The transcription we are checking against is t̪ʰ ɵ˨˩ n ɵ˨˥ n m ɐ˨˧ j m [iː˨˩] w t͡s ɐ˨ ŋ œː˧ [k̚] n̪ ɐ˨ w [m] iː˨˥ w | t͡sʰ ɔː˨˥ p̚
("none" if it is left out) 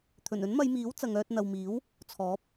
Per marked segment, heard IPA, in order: iː˨˥, t̚, m

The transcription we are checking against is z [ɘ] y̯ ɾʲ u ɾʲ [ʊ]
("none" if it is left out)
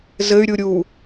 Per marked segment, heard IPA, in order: ɘ, u

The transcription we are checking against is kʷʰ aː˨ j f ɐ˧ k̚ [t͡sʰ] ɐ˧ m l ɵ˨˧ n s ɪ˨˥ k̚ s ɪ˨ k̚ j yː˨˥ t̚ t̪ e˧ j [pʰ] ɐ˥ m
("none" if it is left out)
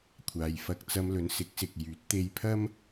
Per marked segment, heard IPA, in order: t͡s, pʰ

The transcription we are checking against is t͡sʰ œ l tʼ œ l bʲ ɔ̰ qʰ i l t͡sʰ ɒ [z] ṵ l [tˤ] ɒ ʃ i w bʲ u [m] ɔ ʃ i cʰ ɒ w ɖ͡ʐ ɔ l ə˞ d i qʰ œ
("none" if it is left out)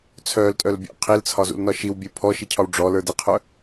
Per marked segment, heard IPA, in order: z, n, pʰ

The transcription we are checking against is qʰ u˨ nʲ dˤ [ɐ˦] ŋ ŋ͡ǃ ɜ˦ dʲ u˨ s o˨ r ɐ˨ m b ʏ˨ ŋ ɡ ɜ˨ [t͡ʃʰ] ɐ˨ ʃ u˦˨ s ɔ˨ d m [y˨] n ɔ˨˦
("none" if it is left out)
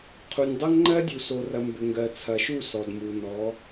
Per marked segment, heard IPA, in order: ɐ˦, t͡sʰ, u˨

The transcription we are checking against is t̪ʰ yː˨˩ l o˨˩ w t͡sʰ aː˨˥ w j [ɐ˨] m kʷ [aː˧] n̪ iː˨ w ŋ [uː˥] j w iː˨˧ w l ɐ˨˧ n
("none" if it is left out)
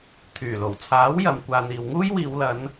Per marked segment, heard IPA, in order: ɐ˨, aː˨, uː˥

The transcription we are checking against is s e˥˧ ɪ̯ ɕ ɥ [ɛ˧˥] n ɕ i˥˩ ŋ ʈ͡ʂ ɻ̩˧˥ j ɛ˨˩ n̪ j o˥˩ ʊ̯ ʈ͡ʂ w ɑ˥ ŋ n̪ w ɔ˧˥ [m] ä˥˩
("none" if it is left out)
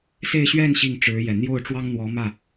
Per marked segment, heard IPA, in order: ɛ˥˧, m

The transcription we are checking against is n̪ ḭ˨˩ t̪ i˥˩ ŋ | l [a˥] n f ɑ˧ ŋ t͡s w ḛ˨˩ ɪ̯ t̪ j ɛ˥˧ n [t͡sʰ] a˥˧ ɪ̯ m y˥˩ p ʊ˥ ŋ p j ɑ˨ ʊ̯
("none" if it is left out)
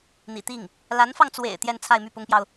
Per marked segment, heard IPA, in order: a˧˥, t͡sʰ

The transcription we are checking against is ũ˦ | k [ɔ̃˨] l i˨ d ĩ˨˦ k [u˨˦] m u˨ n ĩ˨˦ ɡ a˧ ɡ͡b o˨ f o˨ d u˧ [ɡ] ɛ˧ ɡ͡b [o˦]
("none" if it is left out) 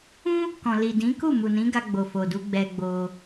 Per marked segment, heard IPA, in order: ɔ̃˨, u˦˨, ɡ͡b, o˦

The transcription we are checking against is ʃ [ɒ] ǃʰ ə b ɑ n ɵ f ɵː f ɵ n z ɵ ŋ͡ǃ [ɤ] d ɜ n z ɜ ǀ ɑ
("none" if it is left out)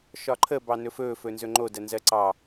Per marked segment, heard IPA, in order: ɒ, o

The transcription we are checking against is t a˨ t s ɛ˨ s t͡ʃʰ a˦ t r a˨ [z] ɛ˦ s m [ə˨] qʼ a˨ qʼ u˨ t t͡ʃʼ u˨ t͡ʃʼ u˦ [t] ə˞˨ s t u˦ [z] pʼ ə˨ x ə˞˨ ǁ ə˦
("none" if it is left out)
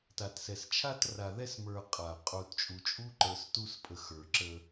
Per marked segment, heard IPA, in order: ð, ə˞˨, ǃ, s

